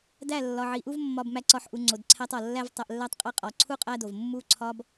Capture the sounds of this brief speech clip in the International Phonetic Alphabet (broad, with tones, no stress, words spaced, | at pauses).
dæ˦˨lːɒ˨ ʕi˨ʔu˦vmːɒ˧bmæ˧ ǀɒ˧ħ ʔu˧ ŋ͡ǀo˨dǀʰæ˦tˤ ɒ˨ lːæ˦vtˤæ˧ʔlːæ˦tˤqʼe˦ qʼɒ˨ǀʰu˦ qʼæ˦do˨v mːu˦ǀʰɒ˦b